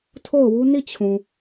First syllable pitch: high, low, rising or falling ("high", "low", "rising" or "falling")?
falling